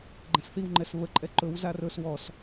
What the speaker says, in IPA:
ɡ͡ǃɛ̃sθiw ŋ͡ǃɛsβə ǃʼɛǃɵw zarɵs wɔs

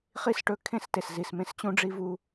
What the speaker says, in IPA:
χi˦˨sʈɵ˦˨ kʰẽ˦˨ste˨szi˨smẽ˦s t͡ɕũ˦ɖ͡ʐi˦vu˦

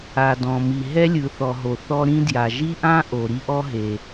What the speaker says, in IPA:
a˩dɔ̃˩mi˩ ɦɛ˥lʲɯ˩θɔ˩ɦo˩ θɔ˥ɾĩ˥ dja˩ʒi˥ʔã˥ ʔo˩ ɾi˥ʔɔ˥ ɦe˩

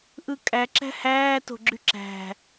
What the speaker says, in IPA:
ʔɯkʼæǁæ̤ hæːto̤ ɡ͡ǁyǁæ̤

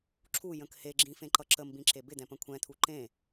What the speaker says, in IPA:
ǁʰujə̃k heɡ͡ǁĩfẽǃʌ ǁəmbĩǁe bɪd̪ɛ̃pə̃ kʷʰɛ̃t̪ʰu ǃẽ

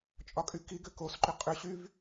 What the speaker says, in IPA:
t͡ʃʼɒkʼykiɡʏ kosǃʏ qʼʏɕyv

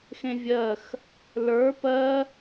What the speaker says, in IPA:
xẽvʲɜx | lə˞ pɜ

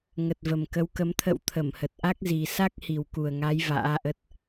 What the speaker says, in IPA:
ŋə˨˩t̚və˨˩mkə˨˦wkə˨˦m t̪ʰə̰˧˨w t̪ʰə˧˩mhə˨˩t̚ʔa˦˥k̚zi˨˩ sa˦˥k̚hi˨˩wku˨˩ə̯ŋa˨˦j va̰ː˧˥ʔə˦˥t̚

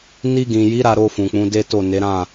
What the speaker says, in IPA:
ni˧ɡĩ˨ji˨˦ ɾa˧ɾo˧ fũ˨k͡pũ˨˦de˦to˦˨ ne˨˦ɾã˦˨

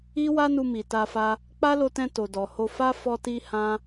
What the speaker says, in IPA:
i˦wa˦nu˧ mi˨ta˧fa˧ | k͡pa˦lo˧tɛ̃˧ to˨dɔ˨ho˧fa˦ fɔ˦ti˦ hã˦

